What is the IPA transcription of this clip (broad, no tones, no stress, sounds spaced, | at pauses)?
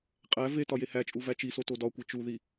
qʼ æ v e t ɒ j e h æ t͡ʃʼ u v æ t͡ʃ i s o t o d ɒ kʷ e t͡ʃ u ð i